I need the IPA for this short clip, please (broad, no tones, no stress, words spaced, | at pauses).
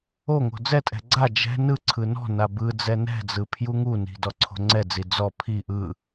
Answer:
oŋo̤ d͡zɛtʼɛ̤ ɡ͡ǀa d͡ʒɛ̤ nɯǀʰɯ nɔ̤na bɯ d͡zɛnɛ̤d͡zɯ pʰjuŋuni̤ dɔǀʰo̤ŋ͡ǀɛd͡zi d͡zɔ pʰi ʔɯ